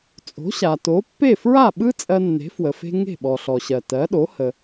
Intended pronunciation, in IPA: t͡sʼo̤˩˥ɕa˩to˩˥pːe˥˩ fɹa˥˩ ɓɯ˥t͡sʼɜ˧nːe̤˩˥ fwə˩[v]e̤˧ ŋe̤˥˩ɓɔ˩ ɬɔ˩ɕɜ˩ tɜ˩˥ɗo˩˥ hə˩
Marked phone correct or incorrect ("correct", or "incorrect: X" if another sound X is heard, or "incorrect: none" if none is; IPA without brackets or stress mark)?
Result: incorrect: f